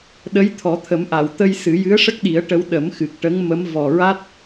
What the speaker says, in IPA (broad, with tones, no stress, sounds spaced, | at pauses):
ɗ ə˧˥ j t̪ʰ ɔ˨˩˦ t̪ʰ ə˨˩˦ m ʔ a˨˩˨ w t̪ ə˧ j s ɨ˨˩˦ j ɨ˧˥ ə̯ ʂ ə˦˥ k̚ ɗ i˨˩˦ ə̯ ʈ ə˧˥ w ɗ ə˨˩˦ m x ɨ˨˩ k̚ ʈ ə˧˥ ŋ m ə˧˥ m v ɔ˨˩ ɹ a˦˥ t̚